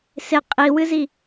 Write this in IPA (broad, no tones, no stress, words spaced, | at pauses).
sɪ qʼiwɨzi